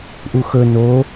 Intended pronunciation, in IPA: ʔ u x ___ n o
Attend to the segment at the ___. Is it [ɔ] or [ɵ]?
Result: ɵ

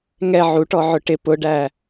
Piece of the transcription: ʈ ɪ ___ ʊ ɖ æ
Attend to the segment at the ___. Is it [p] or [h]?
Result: p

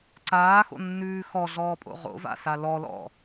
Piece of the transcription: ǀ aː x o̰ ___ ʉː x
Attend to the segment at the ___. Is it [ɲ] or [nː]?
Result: nː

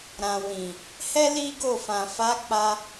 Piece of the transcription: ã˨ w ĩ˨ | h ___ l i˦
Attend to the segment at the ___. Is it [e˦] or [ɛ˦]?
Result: ɛ˦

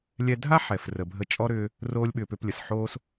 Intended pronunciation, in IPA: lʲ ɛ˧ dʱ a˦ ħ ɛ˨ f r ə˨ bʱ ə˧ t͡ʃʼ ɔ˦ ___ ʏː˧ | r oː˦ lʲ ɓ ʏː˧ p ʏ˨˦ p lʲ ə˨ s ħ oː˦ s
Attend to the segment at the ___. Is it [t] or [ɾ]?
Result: ɾ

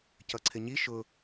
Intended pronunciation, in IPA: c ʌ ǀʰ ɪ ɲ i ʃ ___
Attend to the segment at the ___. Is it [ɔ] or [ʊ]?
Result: ʊ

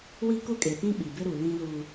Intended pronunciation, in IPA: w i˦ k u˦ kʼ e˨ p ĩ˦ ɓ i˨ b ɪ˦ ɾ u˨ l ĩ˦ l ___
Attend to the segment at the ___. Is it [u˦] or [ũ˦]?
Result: u˦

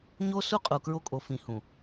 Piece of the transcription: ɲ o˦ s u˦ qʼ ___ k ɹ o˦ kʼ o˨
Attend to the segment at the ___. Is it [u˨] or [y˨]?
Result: u˨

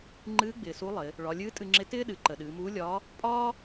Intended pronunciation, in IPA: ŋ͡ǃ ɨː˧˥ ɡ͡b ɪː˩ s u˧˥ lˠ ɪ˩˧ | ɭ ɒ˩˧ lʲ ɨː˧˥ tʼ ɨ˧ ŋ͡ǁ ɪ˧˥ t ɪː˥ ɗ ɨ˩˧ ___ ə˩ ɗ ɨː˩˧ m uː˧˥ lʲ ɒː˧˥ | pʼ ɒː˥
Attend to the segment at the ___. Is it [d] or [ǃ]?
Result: ǃ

